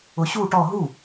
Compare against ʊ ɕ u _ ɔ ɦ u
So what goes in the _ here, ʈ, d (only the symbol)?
ʈ